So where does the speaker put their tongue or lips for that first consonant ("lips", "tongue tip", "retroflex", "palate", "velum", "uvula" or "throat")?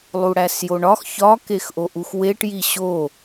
tongue tip